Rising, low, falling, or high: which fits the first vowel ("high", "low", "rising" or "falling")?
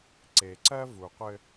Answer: low